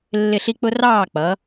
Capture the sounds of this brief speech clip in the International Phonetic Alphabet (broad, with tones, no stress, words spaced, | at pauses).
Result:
lːɪ˥˨ɬi˥k͡pʊ˥ rɑː˥˨k͡pʌ˨˦